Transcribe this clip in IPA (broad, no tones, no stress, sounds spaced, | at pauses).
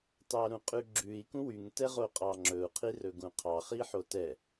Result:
t ɑ ɾ ũ qʼ ʉ ɡ͡ǁ ʉ i̯ k ũ w y ŋ t ɛ ʁ o qʼ ɑ ŋ͡ǁ ɵ u̯ qʰ i r ɵ ɡ ũ qʰ ɑ χ i ħ o t ɛ